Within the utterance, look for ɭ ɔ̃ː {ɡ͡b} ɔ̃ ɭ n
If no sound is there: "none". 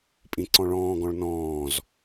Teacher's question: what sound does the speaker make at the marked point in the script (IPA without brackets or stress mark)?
ɡ